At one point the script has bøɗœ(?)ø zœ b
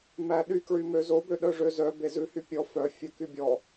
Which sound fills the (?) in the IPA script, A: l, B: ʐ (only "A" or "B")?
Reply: B